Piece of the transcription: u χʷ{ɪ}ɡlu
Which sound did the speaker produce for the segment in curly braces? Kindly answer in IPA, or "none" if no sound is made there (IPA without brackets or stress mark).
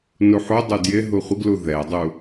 ɪ